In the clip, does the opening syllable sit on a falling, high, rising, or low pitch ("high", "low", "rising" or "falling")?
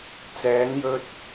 rising